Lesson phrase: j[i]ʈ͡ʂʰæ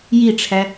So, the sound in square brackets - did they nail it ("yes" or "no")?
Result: yes